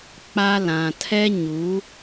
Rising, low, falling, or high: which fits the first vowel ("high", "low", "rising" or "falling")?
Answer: high